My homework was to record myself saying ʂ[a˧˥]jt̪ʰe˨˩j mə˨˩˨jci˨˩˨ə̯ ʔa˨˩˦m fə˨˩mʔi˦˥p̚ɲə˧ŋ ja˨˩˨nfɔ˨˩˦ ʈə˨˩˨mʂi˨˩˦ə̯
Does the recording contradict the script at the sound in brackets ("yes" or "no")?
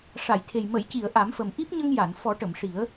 yes